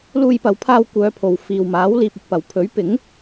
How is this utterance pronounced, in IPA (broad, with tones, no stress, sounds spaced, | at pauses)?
l uː˧ j p ɐ˨˧ w pʰ aː˧ w kʷ œː˨˧ pʰ o˨ w f iː˨ w m aː˨˥ w l iː˨ p̚ ɵ˧ t̚ p ɐ˨ w pʰ ɵ˨˥ ɥ p ɪ˨˥ ŋ